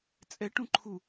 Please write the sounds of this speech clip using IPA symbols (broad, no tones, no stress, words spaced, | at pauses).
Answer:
t͡sʼɛʈũ ǃʰu